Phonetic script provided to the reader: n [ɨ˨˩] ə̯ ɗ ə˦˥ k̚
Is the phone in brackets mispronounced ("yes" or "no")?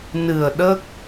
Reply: no